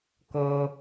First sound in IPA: k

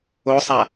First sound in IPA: o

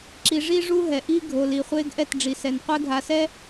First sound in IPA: ǁ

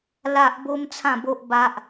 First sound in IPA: l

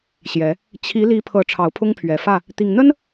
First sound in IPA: ɕ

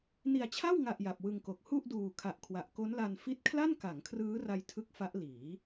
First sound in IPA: n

